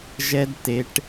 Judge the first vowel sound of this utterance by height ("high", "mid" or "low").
mid